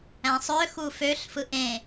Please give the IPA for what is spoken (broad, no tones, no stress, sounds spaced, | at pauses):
æ̃ sˤ ø x u f ø ɬ f ɯ ʔ ẽ